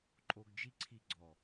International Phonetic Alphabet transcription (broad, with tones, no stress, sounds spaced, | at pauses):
ǃʼ o˧ ɡ d͡ʒ i˦ ǀʰ i˧ ɡ͡ǀ ɔ˨